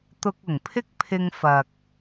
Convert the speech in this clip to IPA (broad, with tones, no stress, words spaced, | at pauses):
t̪ʊ˧k̚ʊ˨˩ŋpʰɪ˥k̚pʰɪ˧ŋ fɐ˨k̚